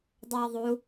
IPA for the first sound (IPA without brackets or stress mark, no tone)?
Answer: dˤ